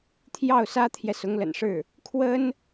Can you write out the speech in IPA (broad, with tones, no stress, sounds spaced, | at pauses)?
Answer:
t̪ʰ j ɑ˥˩ ʊ̯ s ä˥ t̪ʰ j ɛ˨ s ʊ˧˥ ŋ l ə̰˨˩ n ʂ ɻ̩˥˩ | kʰ w ə˥ n